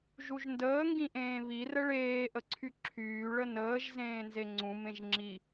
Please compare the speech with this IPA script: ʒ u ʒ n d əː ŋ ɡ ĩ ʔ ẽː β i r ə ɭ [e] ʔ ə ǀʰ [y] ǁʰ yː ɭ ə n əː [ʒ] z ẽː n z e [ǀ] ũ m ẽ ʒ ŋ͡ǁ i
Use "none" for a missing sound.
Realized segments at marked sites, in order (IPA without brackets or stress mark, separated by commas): eː, y, ʒ, ŋ͡ǀ